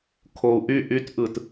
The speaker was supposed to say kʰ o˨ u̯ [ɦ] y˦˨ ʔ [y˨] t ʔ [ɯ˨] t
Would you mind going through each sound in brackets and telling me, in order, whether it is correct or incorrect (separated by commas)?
incorrect, incorrect, correct